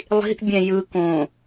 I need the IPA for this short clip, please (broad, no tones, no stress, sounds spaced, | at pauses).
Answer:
lˠ i̤ ʔ bʲ ɛ̃ j ɯ k õ